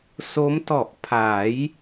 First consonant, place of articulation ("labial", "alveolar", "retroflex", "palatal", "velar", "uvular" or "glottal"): alveolar